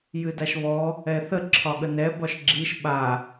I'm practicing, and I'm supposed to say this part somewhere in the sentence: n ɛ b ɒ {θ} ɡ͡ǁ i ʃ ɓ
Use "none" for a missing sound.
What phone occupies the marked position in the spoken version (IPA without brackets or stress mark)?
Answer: ʃ